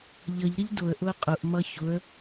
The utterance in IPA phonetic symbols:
ʎʌʎɾəʎ dʊə̯ ʔʊə̯qʼʊʔmʌ çʊə̯

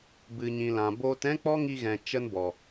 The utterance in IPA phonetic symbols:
bɨ˨ɲĩ˨lã˨ boː˧tɛ̃˦k͡pɔ˦ŋi˧ ɣɛ̃˨t͡ʃə˧nbɔ˨

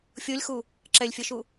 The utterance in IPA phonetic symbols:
fʲolʲxu | ǁɛlʲfʲʌʃu

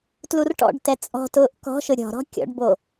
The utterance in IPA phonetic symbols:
tlurʈɔ̰ɖtɛ t͡sʼɔ̤tʊːʔ kɔ̤ʃʊ ɾʲɔ̤ɾɔ̤ kʲɔ̰ɖbo

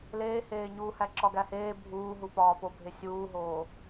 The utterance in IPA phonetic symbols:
leːheːɲuːhæ ǁɒɡæheː bʱuːɦupɒː pobʱesʲuːɦoː

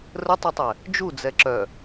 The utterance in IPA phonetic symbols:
rətˤɵtˤɛ | d͡ʒud͡zɛ ǁœ

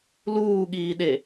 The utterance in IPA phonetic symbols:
luːɠiːɗe

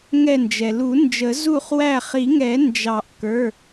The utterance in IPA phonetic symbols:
ŋɛ˧˩nd͡ʒɛ˩lu˨˩˦nd͡ʒə˨˩˦ zu˧˩χ wæ˧˩χi˨˩˦ŋɛ˨˩˦nd͡ʒɑ˨˩˦ʔ kə˞˩˧˩

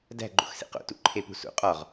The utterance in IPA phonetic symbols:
dæ̤ɡ͡ǃo̰xsḭ qo̰tṵǃʰepṳ sṵ qʼɒʁ

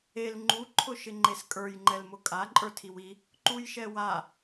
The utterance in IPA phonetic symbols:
el ŋ͡ǃu ǃʰʊʃɪŋ͡ǃeskʼə˞j ŋ͡ǃɛlmʊkʼa ǃʼə˞tʰiwi | ǃujʃɛwa

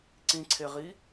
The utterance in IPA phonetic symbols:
ǀĩǀʰeʁi

